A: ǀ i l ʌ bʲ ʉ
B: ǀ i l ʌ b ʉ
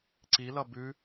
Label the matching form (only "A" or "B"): B